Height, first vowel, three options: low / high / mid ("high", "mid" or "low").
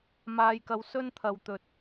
low